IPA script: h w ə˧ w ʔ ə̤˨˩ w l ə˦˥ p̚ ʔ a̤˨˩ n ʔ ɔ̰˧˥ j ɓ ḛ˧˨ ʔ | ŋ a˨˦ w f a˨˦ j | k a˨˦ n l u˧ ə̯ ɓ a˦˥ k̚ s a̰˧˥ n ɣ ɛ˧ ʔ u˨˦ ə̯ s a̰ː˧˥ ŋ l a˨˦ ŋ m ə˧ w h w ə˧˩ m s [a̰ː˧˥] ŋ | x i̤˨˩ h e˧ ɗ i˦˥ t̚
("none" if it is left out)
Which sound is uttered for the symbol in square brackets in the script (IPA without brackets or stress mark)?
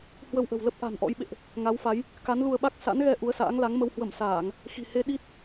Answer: aː˧˩˨